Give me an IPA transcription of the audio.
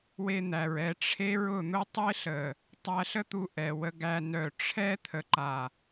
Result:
w e˧ n̪ æ˨ ɹ ɛ˦˨ ʈ͡ʂʰ e˦ ɹ ʊ˦˨ n̪ ʊ˦ tˤ e˦ ɬ ə˨ | tˤ æ˧ ɬ ə˦ t̪ u˧ ʔ ɛ˨ w ə˧ ɡ æ˧ n œ˨ ʈ͡ʂʰ ɛ˦ t̪ʰ ə˨ ǃ a˨

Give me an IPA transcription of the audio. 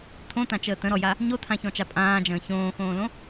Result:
tʰ õ t ã t͡ʃ əː t ə̃ ɾ ɔ j a | ɲ o tʰ ã ç ɔ̃ t͡ʃ a pʼ ãː d͡ʒ ə̃ː ç õː x õː l õ

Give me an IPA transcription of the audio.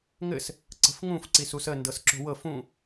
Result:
ŋ ɘ s | ǀ ə̤ f ŋ ũ f ǀ i s u s ə n d ɤ s ǁ o̤ w ɤ f ũ

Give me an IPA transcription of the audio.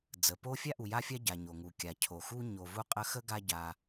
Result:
d͡z ə˩ p o˥ fʲ a˥ ʔ u˨ j a˦ fʲ a˦ ɟ a˩ ɲ o˩ ŋ u˩ kʲ a˩ cʰ o˩ x u˥ ɲ o˨ v u˦ qʼ ə˦ x ə˥ ɡ a˦ ɟ a˨

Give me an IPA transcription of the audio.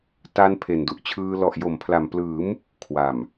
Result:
t a˧ n pʰ e˨˩ n d u˨˩ ʔ t͡ɕʰ ɯː˧ l ɔ˨˩ ʔ j o˩˦ m pʰ l a˨˩ m p l ɯː˩˦ m | kʰ w a˨˩ m

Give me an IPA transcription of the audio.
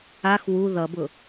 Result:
a x w u ð ʌ b ʊ

